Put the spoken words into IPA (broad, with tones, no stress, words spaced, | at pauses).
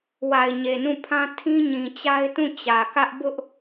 wa˨ɪ̯ɲe˨nũ˦˨pʰã˦ tʰĩ˦ɲĩ˨t͡ɕa˦ɪ̯tũ˦˨ t͡ɕä˨kä˦ʔ bʊ˦ʔ